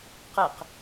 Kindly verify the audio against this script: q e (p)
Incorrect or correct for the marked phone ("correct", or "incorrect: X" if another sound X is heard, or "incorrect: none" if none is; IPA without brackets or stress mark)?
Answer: incorrect: q